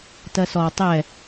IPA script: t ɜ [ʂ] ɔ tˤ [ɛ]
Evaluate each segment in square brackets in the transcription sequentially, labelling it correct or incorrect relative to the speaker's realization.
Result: incorrect, correct

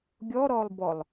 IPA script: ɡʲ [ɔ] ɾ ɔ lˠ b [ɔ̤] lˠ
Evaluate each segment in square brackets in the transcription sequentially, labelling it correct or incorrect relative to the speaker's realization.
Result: correct, incorrect

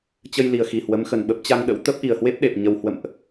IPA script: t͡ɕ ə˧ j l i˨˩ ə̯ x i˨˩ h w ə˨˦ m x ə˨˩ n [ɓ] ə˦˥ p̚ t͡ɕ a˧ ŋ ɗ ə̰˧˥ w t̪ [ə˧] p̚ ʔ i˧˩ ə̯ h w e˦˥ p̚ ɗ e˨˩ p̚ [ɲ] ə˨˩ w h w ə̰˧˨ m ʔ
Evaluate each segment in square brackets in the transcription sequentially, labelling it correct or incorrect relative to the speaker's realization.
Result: correct, incorrect, correct

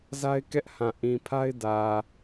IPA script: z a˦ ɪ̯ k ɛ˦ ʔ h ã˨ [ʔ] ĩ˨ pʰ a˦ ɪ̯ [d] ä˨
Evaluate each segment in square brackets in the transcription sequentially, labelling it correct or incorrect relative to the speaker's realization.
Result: correct, correct

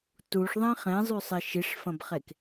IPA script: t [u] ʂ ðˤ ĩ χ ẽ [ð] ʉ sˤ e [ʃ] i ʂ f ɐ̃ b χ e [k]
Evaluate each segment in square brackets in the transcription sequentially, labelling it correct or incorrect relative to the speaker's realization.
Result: correct, incorrect, correct, correct

